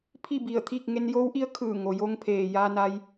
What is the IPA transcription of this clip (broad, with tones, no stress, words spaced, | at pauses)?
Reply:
pʰi˥˨bi˧˩ə̯t̪ʰi˥˨k̚ ŋe˧njoː˧˥wʔi˧˥ə̯ kʰɯː˧˩ŋo˩jo˧ŋpʰeː˩ jaː˧na˧j